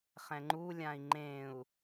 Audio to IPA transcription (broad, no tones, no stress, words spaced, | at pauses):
χɛ̃ŋ͡ǃulʲãi̯ ŋ͡ǃẽu̯